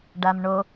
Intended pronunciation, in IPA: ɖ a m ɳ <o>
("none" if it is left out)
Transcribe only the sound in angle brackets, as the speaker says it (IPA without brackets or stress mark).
o